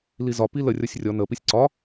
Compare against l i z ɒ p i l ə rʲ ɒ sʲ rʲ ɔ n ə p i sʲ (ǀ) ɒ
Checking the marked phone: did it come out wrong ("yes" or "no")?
no